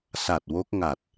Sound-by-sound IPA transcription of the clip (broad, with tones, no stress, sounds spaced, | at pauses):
s a˨˩ t̚ w o˦˥ k̚ ŋ a˨˩ t̚